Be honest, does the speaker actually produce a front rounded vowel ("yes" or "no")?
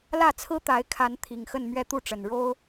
no